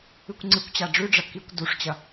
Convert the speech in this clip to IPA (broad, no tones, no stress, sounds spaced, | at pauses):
ɨ kʷ ŋ͡ǀ ɨ kʷ t͡ɕ a ɖ͡ʐ ʉ ɖ͡ʐ ɐ k i kʷ d u ʂ t͡ɕ ɐ